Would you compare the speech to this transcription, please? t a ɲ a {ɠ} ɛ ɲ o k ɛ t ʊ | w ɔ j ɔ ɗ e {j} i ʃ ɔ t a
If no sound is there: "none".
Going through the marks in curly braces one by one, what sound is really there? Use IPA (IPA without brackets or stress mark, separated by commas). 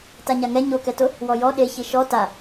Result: ŋ, ç